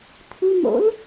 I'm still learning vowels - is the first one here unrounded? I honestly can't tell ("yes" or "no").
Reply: no